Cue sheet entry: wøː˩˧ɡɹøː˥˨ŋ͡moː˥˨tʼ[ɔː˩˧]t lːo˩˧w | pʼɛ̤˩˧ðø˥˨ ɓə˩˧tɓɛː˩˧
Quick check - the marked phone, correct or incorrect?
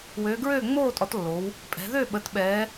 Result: incorrect